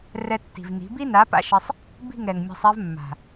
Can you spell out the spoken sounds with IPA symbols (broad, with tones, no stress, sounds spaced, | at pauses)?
r ɛ˧ tː i̤˨ v n i̤˨˦ b i˦ n a˨˦ p a̰˦ ʃ ɪ˧ sˤ | b i̤˦˨ ŋ ɾ ɛ˨ ŋ mʲ a̤˧ sˤ ɛ˦ v mː a̤˨